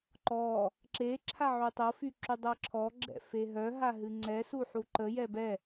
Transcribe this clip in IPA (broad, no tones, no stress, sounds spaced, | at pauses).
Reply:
ǃ ɔ | ǁ e ǁʰ a ʕ y tˤ ɤ f y ǁ y dˤ ɤ ǁʰ ɔ ɡ͡ǁ ɛ̰ f e ɦ œ ɦ a ɦ ɨ ŋ͡ǀ ɛ s u ħ u ǃ ə j ɛ b ɛ